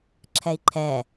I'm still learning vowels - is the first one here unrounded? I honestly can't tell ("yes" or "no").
yes